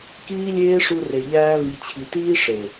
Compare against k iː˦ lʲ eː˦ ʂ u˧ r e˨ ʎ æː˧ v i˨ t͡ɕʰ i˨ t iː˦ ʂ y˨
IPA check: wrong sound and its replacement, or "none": y˨ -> e˨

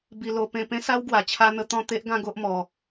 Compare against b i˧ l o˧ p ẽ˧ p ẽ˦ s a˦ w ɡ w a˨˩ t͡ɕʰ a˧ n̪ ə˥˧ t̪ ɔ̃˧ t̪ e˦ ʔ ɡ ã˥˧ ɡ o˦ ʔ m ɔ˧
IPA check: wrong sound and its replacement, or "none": ə˥˧ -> ə˧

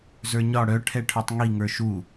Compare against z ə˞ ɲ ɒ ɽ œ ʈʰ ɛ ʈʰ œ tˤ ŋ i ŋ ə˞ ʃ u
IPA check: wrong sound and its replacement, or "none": none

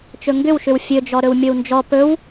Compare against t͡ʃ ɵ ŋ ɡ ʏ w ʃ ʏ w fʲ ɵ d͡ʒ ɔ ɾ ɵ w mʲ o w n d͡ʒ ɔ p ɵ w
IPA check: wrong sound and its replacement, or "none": none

